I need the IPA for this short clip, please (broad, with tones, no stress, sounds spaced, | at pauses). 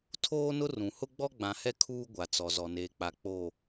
tʰ oː˦ n ʊ˦ r ũ˨ h ʊ˦ ɡ͡b ɔ˦ ɡ͡b ã˨ h ɛ˦ kʰ uː˦ ɡʷ a˨ t͡s ɔ˨ z ɔ˨ n eː˨ k͡p a˨ k͡p o˨